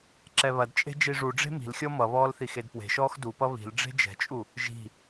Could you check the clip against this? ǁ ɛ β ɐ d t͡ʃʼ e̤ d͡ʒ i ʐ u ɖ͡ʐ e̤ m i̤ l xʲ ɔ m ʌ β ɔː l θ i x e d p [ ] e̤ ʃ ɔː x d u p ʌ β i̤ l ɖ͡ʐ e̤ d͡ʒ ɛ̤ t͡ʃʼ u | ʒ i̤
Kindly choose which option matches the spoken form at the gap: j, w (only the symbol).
w